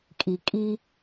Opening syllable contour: low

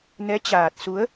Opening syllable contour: rising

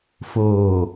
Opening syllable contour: low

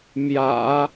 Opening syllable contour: low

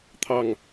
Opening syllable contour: low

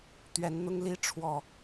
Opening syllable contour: rising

